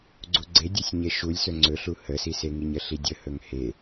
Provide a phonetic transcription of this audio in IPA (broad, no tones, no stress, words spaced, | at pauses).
ɡ͡ǀuɡ͡ǀedʲɵsʲ ɲeʃulʲsɵ ŋ͡ǀɵɬu həsiseŋiɲ əɬidʲəhɵŋ he